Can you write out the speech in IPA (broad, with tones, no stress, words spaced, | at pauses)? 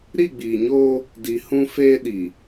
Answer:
ɾi˦˨ɡ͡biː˨ɲoː˦ | di˨ hũ˦feː˦ ɗi˨